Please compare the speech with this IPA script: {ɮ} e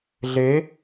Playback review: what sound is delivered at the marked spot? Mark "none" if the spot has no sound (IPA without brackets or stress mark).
ɮ